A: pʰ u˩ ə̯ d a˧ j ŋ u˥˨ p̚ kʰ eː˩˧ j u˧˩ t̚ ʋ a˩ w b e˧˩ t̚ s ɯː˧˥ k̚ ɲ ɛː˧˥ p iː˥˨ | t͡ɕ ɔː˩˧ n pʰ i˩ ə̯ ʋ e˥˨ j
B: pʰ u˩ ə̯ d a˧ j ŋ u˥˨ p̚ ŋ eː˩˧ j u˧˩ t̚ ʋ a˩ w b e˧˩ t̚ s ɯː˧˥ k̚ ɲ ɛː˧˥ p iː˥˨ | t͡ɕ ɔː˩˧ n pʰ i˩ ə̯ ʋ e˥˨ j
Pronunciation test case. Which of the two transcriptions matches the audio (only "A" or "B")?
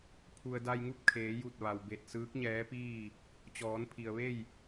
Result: A